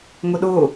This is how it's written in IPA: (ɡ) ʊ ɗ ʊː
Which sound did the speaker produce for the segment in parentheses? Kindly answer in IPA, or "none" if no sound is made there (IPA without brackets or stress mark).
ŋ